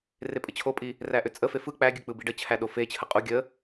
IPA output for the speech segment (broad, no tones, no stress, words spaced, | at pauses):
repʼət͡ɕʰopʼi | ræʔʏt͡sʼəfe fɯ k͡pæɡʲɯ k͡pɯbiɖət͡ɕʰæ ɗofet͡ɕʰə qʼu ɡʲə